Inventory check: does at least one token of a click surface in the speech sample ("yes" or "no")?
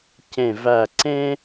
yes